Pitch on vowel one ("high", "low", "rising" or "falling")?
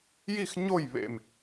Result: falling